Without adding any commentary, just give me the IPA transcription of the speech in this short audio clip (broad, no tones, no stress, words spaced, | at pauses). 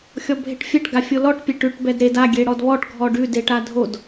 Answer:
xʲɔbʱeʈfʲɛʈ ɡafʲolɔʈ pʲeʈʉʈ bɛdɾed a ɡʲeɽɔdβɔʈ ɡʱɔɖʉ deʈadʱod